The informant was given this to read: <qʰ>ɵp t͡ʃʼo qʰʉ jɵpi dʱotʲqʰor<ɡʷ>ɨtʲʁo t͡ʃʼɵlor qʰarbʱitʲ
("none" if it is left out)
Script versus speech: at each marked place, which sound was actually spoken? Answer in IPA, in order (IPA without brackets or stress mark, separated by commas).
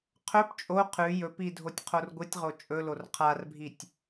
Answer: qʰ, ɡʷ